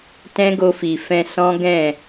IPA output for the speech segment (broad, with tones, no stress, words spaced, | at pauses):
tɛ̃˦ɡo˧fi˨fɛ̃˧ sɔ̃˦ɡɛ̃˦˨